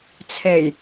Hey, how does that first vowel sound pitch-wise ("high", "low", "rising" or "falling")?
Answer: low